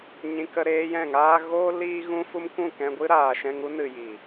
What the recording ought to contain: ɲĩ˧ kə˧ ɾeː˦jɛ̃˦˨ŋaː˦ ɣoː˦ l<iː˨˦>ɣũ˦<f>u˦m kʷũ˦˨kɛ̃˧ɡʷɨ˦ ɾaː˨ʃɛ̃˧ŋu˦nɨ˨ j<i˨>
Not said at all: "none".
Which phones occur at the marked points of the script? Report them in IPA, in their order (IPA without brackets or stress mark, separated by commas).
iː˦, f, i˨